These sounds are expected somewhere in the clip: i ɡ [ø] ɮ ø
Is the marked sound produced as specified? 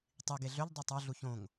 no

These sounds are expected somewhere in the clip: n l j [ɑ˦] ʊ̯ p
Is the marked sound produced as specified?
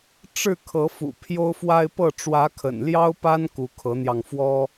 yes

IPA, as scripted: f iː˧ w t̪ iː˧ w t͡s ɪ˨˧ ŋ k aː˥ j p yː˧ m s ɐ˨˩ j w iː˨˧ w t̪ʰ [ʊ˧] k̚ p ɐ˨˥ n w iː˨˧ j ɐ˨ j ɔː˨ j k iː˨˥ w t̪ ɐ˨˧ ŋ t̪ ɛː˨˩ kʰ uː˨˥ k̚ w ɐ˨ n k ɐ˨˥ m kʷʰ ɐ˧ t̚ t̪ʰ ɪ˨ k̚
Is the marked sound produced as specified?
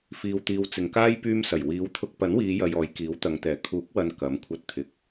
yes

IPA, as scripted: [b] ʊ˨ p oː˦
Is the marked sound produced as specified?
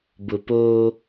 yes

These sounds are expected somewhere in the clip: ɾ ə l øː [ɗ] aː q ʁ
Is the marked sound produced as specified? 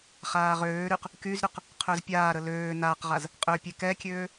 no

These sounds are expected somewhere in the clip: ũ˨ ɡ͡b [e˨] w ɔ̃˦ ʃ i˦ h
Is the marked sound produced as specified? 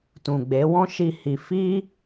no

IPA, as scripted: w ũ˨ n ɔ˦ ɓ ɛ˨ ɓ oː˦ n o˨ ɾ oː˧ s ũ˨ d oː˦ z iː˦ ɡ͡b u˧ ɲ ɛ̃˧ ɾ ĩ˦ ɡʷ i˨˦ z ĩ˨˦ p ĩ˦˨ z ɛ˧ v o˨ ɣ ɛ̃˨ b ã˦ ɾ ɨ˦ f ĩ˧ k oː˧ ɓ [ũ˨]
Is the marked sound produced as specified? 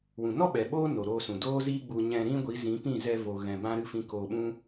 no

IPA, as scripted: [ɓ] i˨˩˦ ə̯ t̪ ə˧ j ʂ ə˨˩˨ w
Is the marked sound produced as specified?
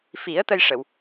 no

